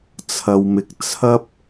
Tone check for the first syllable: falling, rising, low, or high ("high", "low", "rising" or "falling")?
low